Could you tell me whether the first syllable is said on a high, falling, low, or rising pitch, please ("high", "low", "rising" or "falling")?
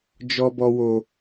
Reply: high